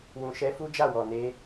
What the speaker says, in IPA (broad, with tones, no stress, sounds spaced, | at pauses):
w ũ˨ ʃ ɛ˧ f u˦ d͡ʒ a˦˨ w ɔ˨ n e˧